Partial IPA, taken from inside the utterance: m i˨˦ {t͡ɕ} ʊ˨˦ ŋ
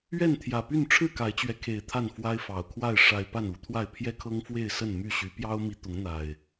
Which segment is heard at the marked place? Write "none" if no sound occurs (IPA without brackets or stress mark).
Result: t̪